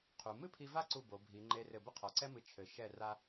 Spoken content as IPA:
qʰ u˩˧ m ɨ˥ pʰ i˧ v a˥˧ ǀ u˧˩ b o˩˧ bʱ i˩˧ ŋ͡ǃ e˧ r ɘ˧˩ b ɘ˥ qʰ ɔ˩˧ ǀ ɛ˥ m ɨ˧˩ t͡ʃʰ ɘ˩˧ ʃ ɛ˧˩ r a˥

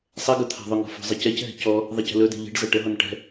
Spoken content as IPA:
sˤ ɛ ɡ ɵ t̪ʰ a̤ ðˤ ʏ ŋ ɔ̤ f ɔ̤ zˤ ɛ c ɛ c ɦ ɛ̤ c ɔ | ðˤ e c ə̤ l ɵ d e̤ ʎ e̤ ɖ z ɐ ʈ ə ɦ ɔ n ʈ ɛ̤

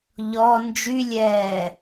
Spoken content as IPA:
ʎ ɔ n d͡ʒ y lʲ ɛː

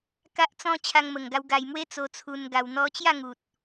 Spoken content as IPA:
k a˦ ʔ t͡s ɔ̃˦ t͡ɕʰ a˧ ŋ m ə˨˩ ŋ ɡ a˧ w ɡ a˧ j m w e˦ t͡s o˧ t͡sʰ u˧ n ɡ a˧ w n̪ ɔ˧ t͡ɕ j a˥˧ ŋ u˨ t̚

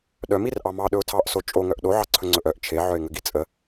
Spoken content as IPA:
ɗ œ m i r ʔ ɑ m ɑ ɗ ɵ ʊ̯ tʰ ɑ ʔ s o t͡ʃʼ o ŋ œ ʔ ɗ o ʕ ɑ ǀʰ ɵ ŋ͡ǀ ɵ ʔ œ ʔ t͡ʃʰ e ʕ œ ɪ̯ ŋ ə ɡ i t͡sʼ ə

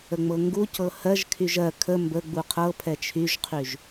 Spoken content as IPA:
ə ŋ͡m ɤ ŋ ɡ u c ɤ h ɜ ʒ kʰ y ʒ ɜ kʰ ə m b ə ɡ͡b u qʰ ɤ pʰ ɛ t͡ʃʰ y ʒ qʰ y ʒ

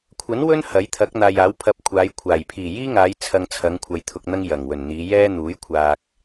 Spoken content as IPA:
kʷʰ ɐ˨˥ n w ɵ˥ n h ɐ˨˥ j t̪ʰ ɐ˨˥ k̚ n̪ aː˨ j aː˨˥ w pʰ ɐ˧ p̚ kʷʰ aː˨˧ j kʷʰ aː˨˩ j pʰ iː˨˩ j iː˥ ŋ aː˨˧ j t͡sʰ ɐ˧ ŋ t͡sʰ ɐ˨˧ ŋ kʷʰ ɐ˨ j t̪ʰ ʊ˧ k̚ n̪ ɐ˥ ŋ j ɐ˨˩ ŋ w ɵ˨˩ n n̪ iː˨˧ j ɛː˥ n̪ uː˨˥ j kʷʰ aː˨ k̚

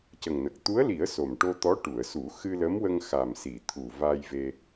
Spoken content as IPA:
c ə˨˩ ŋ n ə˨˩ k̚ t̪ u˧˥ ə̯ l i˨˩˦ ə̯ s o˨˩ m ʈ o˧ t̪ ɔ˧˥ ʈ u˨˩˨ ə̯ s u˨˩˦ x ɨ˧ l ə˧˥ m w ə˧ ŋ x a˨˩ m s i˨˩˨ t̪ʰ u˨˩ v a˧ j v e˧

